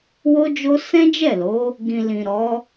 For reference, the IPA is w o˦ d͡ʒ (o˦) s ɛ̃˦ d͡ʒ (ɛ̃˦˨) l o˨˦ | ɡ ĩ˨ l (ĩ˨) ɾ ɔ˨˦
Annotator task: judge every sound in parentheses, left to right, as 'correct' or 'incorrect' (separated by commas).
correct, incorrect, correct